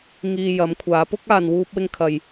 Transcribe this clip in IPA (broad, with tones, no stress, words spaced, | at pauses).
ŋiː˧ jɐ˨˧mkʷʰaː˨˧pʊ˥k̚ aː˧nwuː˥p̚ wɪ˥ŋkʰɐ˧j